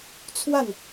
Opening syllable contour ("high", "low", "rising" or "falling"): falling